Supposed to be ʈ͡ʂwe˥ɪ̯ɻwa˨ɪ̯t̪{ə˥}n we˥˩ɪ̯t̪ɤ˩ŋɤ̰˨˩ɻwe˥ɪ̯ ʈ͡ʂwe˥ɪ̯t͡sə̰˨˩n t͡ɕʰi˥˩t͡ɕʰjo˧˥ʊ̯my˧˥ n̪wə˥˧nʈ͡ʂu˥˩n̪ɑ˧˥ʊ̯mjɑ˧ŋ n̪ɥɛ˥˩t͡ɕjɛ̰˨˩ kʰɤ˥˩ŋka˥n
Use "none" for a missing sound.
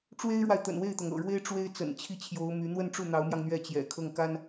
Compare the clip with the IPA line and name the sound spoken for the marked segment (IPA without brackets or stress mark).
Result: ə̰˨˩